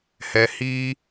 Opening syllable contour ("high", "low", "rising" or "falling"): low